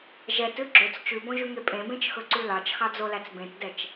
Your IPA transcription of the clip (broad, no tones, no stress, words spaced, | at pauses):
ʒɛtʉ ɡ͡ǁɵt͡s t͡ʃʉbõʒʉŋe pʼẽbẽt͡ʃxɵǀʉ lɑt͡ʃxɑd͡zolæt͡s bẽtdɛt͡ʃ